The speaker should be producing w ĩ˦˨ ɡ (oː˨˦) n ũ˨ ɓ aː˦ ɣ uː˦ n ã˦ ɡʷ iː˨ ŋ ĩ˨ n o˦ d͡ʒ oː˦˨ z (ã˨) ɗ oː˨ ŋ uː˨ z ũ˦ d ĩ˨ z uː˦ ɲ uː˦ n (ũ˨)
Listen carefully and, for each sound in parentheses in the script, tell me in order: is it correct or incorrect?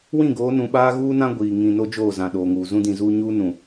correct, correct, correct

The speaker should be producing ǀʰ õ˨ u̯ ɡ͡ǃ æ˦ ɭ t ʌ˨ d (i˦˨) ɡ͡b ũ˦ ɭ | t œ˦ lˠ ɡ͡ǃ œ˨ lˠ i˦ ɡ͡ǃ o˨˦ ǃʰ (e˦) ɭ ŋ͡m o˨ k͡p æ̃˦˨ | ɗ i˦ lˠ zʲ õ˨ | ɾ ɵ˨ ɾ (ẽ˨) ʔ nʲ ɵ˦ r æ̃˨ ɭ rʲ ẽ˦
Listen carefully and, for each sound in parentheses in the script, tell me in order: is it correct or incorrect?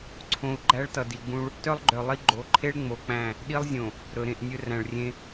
incorrect: i˨, correct, correct

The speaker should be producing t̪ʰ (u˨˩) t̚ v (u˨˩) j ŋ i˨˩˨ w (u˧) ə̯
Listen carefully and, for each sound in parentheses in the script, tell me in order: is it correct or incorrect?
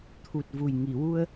correct, correct, correct

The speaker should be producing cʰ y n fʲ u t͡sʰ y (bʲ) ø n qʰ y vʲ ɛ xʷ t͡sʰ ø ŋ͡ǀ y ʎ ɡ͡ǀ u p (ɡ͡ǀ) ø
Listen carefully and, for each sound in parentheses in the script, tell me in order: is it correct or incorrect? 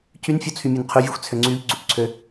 incorrect: mʲ, incorrect: ǀʰ

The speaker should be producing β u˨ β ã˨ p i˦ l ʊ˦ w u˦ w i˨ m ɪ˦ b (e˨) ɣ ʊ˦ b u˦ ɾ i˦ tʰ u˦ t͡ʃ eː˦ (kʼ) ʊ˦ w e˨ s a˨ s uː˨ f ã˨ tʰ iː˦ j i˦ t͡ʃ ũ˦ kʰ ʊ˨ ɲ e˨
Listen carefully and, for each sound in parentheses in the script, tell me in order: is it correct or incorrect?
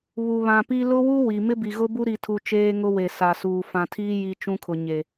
incorrect: i˨, incorrect: ŋ

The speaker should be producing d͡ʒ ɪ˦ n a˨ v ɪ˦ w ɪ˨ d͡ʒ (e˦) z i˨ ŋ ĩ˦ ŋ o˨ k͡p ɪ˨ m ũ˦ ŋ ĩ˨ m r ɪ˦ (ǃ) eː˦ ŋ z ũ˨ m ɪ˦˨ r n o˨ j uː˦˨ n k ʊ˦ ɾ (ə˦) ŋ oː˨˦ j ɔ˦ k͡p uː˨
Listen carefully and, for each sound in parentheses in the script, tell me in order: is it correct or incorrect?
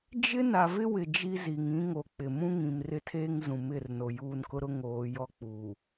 incorrect: i˦, incorrect: tʰ, incorrect: ʊ˦

